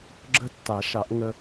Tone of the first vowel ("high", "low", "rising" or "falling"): high